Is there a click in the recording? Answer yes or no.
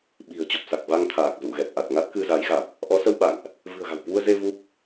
no